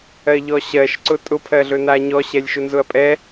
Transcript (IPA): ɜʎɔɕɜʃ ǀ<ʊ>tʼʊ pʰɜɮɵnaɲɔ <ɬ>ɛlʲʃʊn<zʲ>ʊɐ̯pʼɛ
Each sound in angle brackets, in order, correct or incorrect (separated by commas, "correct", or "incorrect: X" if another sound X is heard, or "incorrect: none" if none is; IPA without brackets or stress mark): correct, incorrect: ɕ, incorrect: z